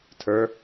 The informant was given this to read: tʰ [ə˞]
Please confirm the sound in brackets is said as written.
yes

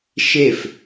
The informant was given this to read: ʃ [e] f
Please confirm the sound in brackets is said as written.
yes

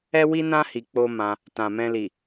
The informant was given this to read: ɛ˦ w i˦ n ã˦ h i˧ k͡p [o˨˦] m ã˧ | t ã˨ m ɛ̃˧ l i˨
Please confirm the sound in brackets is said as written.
no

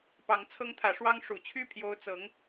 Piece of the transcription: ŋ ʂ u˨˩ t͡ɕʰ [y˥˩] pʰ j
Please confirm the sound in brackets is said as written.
yes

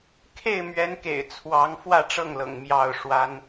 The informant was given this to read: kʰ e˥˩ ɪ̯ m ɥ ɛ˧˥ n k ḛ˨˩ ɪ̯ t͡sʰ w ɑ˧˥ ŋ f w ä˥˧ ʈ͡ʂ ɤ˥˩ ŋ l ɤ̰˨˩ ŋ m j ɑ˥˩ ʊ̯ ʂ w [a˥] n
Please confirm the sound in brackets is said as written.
yes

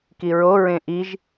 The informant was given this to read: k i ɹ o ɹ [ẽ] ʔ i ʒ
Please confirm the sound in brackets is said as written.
yes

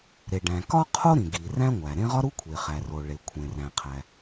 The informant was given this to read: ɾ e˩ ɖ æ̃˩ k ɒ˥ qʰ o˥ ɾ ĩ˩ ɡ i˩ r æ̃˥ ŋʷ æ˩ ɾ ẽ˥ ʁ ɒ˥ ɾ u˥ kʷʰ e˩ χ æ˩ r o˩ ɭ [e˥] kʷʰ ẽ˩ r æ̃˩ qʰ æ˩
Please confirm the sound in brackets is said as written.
no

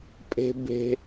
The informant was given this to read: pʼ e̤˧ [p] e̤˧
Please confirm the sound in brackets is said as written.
no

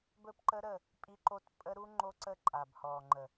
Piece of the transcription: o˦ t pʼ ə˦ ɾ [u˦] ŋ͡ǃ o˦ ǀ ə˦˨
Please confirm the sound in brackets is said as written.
yes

